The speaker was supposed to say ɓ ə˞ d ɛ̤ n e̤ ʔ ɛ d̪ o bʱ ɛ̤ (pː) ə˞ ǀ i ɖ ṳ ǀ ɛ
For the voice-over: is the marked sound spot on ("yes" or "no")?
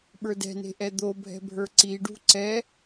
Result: no